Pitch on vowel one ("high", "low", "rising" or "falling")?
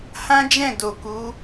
high